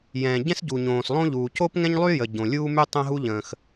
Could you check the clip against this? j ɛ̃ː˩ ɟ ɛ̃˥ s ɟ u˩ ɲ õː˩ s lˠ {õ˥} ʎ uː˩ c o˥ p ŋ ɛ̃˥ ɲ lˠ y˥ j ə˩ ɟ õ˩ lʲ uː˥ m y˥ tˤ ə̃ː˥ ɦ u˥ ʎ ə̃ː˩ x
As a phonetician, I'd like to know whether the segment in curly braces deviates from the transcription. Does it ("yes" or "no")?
no